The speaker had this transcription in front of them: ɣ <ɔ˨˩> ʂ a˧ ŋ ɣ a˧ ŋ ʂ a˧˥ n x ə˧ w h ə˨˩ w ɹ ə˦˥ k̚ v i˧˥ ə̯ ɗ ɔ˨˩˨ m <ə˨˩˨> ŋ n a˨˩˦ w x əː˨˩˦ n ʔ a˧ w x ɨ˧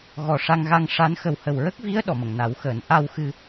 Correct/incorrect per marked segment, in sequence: correct, correct

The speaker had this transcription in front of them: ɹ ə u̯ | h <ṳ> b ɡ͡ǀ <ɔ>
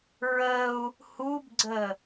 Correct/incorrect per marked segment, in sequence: incorrect: u, incorrect: ə

